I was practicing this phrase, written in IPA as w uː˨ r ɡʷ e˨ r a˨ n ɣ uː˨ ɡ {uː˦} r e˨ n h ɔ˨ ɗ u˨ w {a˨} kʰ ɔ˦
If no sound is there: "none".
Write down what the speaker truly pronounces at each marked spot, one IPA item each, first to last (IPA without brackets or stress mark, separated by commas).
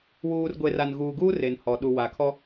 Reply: uː˦, a˨